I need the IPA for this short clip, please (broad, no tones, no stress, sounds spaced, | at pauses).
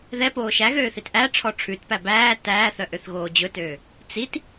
ð ɛ p oː ʃ æ ɣ øː θ i t ʔ æ ʈ͡ʂʰ ɔ ʈ͡ʂʰ ʉ t p æ b æː t æː θ œ ʔ ø θ ɣ oː d͡ʑ ɵ t øː | t͡s i t